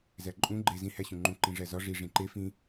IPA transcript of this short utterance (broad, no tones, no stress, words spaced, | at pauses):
zæǃʼũ ɡ͡ǃe zĩ hæɕũŋ͡ǃũ ǃĩʐæzɒ ʐi ʐĩǃe fĩ